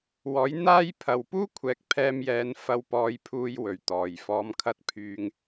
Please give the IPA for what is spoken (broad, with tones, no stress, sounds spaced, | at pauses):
w ɔː˨˥ j n̪ aː˥ j pʰ ɐ˨ w p uː˥ kʷʰ ɛː˨ k̚ pʰ ɛː˧ m j ɛː˨˧ n f ɐ˧ w p ɔː˨˧ j pʰ uː˧ j w ɵ˨˩ ɥ t̪ ɔː˨˩ j f ɔː˨˧ m kʰ ɐ˧ t̚ pʰ yː˨ ŋ